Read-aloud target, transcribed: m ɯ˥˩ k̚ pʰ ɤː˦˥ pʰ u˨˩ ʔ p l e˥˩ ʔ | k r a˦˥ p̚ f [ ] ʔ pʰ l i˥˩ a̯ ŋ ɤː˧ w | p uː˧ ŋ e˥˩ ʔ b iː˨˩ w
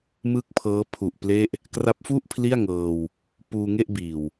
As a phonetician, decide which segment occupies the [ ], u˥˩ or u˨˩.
u˥˩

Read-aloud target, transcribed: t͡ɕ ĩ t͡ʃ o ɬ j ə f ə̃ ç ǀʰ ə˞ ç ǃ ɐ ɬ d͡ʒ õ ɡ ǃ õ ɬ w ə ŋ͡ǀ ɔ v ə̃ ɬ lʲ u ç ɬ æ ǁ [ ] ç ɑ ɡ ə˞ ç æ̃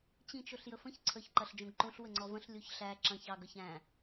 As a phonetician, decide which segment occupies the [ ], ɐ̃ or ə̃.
ɐ̃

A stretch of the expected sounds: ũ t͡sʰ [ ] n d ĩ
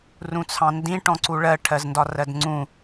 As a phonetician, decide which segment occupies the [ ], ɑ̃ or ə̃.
ɑ̃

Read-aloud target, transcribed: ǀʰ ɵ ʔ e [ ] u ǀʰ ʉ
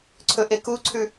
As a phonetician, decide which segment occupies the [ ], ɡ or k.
k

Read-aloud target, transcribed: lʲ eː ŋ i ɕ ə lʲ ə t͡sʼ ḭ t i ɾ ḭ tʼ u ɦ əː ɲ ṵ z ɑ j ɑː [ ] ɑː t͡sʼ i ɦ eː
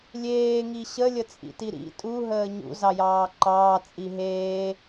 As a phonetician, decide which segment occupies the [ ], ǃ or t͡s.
ǃ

